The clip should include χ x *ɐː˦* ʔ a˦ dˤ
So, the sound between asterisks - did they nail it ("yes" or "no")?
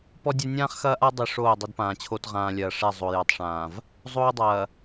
yes